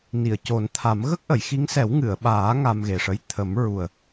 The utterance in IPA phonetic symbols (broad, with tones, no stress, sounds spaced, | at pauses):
n i˨˩˨ ə̯ c o˨˩˦ n t̪ʰ a˨˩˦ m ɣ ə˦˥ k̚ ʔ ə˨˩˨ j x i˧˥ ŋ s ɛ˨˩˦ w ŋ ɨ˨˩˨ ə̯ ɓ aː˨˩˦ ŋ a˧ m ɣ e˨˩ ʂ ə˧ j t̪ʰ ə˨˩˦ m ɹ u˨˩ ə̯